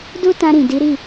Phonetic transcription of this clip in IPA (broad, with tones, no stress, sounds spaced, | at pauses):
d u˦ t ã˧ ɾ ĩ˨ d i˨˦ ɾ i˦˨